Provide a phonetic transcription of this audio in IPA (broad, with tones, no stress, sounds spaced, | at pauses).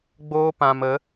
ɡ͡b oː˦ p ã˧ m ə˨˦